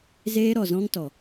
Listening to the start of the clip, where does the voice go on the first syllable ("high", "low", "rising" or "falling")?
high